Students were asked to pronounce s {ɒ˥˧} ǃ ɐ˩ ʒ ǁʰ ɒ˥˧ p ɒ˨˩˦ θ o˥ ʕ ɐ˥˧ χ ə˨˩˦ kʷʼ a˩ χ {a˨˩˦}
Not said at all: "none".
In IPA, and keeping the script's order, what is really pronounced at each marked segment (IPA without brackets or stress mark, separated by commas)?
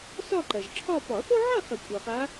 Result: ɒ˥˧, a˨˦